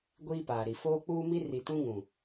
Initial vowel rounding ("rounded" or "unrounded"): unrounded